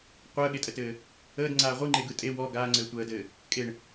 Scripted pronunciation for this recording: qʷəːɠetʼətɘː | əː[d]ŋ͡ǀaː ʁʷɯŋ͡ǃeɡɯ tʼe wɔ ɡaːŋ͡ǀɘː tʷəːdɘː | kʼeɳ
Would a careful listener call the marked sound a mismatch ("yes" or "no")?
no